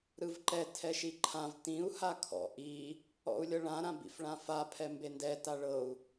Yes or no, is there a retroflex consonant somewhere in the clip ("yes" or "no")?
yes